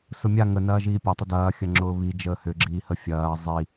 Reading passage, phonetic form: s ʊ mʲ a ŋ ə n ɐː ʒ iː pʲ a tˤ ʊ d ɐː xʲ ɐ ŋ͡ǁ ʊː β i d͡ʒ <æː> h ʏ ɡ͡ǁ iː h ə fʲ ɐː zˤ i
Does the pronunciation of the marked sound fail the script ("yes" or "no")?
yes